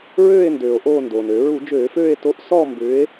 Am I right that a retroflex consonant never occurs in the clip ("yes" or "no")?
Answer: yes